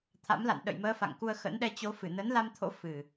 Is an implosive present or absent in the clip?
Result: present